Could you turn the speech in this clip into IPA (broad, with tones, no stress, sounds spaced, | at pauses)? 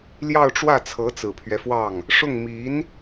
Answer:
l j ɑ˥˧ ʊ̯ ʈ͡ʂ w ä˥˩ t͡sʰ ɤ˧˥ t͡s ɹ̩˨˩ pʰ ɥ ɛ˦ f w ɑ˥˩ ŋ | ʂ ʊ˥˩ ŋ m i˧˥ n